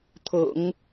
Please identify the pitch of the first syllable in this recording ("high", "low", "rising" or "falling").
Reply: low